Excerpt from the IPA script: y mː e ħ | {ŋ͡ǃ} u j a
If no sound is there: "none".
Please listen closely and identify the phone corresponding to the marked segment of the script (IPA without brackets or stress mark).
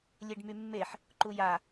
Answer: ǃ